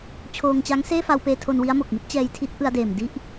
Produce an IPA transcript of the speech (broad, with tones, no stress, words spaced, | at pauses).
t͡ɕʰoː˧ŋt͡ɕa˦˥ŋ seː˥˩fa˧wpeː˧tʰo˧n wi˦˥a̯mo˨˩k̚mi˦˥t̚ t͡ɕɛː˧jtʰi˦˥t̚ ʔɯ˧a̯deː˨˩m di˥˩ʔ